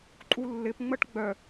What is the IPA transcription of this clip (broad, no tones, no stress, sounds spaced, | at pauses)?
ǃʼ u lː ɪ p ŋ͡m ə ʈ ɡ͡b œ